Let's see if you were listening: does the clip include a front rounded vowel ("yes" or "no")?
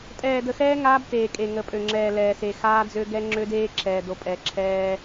yes